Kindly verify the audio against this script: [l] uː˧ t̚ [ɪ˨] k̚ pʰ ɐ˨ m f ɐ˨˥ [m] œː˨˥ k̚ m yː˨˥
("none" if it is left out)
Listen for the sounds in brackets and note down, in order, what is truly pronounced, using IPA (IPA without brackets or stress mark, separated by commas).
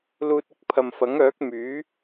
l, ɪ˧, ŋ